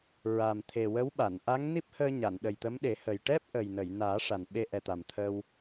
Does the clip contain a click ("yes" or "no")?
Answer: no